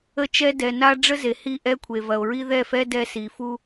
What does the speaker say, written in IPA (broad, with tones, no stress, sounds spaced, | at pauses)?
ə˦ t͡ʃ ɛ˦ d ɛ˨ n a˦ ɖ͡ʐ ə˦ z e˨ h i˦˨ ʔ ɛ˦ kʷʰ e˨ v ɐ˨ o̯ ɹ i˦ ð ɛ˦˨ f ɛ˦ d ɛ˦ s i˨ f u˦